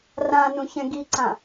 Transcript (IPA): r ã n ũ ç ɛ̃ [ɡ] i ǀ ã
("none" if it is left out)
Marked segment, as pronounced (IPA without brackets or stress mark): ɡ